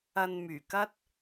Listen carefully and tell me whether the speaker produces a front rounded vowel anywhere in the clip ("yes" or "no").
yes